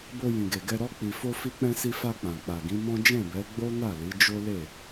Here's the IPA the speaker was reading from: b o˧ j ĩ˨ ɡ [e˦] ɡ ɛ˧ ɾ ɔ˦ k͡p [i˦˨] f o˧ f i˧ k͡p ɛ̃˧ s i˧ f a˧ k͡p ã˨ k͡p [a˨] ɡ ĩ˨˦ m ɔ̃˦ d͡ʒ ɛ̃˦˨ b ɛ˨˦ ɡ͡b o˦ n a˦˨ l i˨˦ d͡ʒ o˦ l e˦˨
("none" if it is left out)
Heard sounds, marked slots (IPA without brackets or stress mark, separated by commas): e˨, i˧, a˨